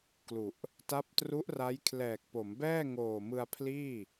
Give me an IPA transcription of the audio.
k l u˨˩ ʔ | t a˦˥ p̚ t r u˦˥ ʔ r a˦˥ j kʰ l ɛː˨˩ k̚ p o˩˦ m b ɛː˥˩ ŋ oː˨˩ m ɯ˧ a̯ pʰ l iː˥˩

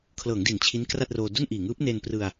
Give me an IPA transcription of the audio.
kʰ l ɤː˩˦ ŋ d i˩˦ n t͡ɕʰ i˦˥ n k r a˥˩ t̚ r oː˧ d u˥˩ n ʔ iː˨˩ ŋ ɯː˦˥ p̚ n e˧ n p r ɯ˧ a̯

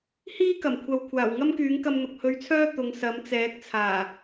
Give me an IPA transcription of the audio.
h iː˥ k ɐ˨˩ m kʷʰ ɐ˨ w kʷʰ aː˨˩ w ŋ ɐ˥ m k yː˨˥ ŋ k ɐ˧ m n̪ ʊ˨ k̚ h ɵ˧ ɥ t͡sʰ œː˥ t̪ ʊ˨˧ ŋ s ɐ˨˥ m t͡s ɛː˨˥ k̚ t͡sʰ aː˨˩

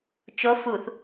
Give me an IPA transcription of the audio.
t͡ʃ o f u θ

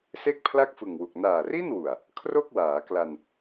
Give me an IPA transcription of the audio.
s e˥˩ k̚ pʰ l a˥˩ k̚ f ɯ˨˩ ŋ w u˨˩ k̚ n aː˨˩ r i˥˩ n w u˨˩ a̯ | kʰ r o˥˩ k̚ w aː˩˦ k l a˧ n

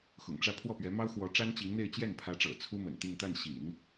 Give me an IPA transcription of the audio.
x ʊ̰˨˩ ŋ ʈ͡ʂ ä˥˧ pʰ w ɔ˥˩ p ɥ ɛ˧˥ m ɑ˥ ʊ̯ x w ɔ˧˥ ʈ͡ʂ a˥ n t͡ɕ i˧˥ ŋ n̪ e˥˧ ɪ̯ t͡ɕ j ɛ˥˩ n pʰ ä˧˥ ʈ͡ʂ ɤ̰˨˩ t͡sʰ u˥ m ə̰˨˩ n t̪ i˥˧ ŋ t̪ a˥˩ n ɕ ḭ˨˩˦ n

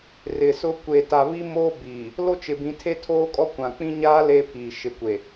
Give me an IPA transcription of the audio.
r ɪ˨ s ʊ˦ kʷ e˨ t a˨ β i˦ m oː˦ b iː˨ | l o˦ t͡ʃ ɪ˨ b ĩ˨ tʰ e˦ tʰ oː˦ kʼ ɔ˦ kʷ ã˨ k͡p ĩ˦ ɲ aː˦ l e˦ pʰ iː˨ ʃ ɪ˨ kʷ e˨

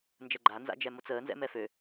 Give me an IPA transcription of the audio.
n d͡ʒ ə ɡ͡ǃ a n z a̰ d͡ʒ ɛ m o t͡s əː n z ɛ̰ m ɛ f ø

